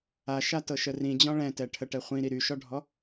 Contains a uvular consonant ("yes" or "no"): yes